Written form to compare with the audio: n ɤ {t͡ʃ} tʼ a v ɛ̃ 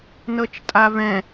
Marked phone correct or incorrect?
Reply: correct